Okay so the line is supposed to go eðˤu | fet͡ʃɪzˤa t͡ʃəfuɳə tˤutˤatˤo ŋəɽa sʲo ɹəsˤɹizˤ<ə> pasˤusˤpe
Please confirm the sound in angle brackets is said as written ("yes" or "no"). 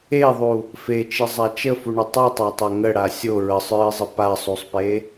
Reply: yes